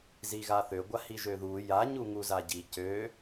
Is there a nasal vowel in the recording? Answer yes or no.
no